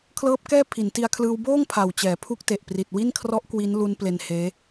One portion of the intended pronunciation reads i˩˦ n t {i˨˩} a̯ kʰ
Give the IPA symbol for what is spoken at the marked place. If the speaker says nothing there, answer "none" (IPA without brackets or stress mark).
i˧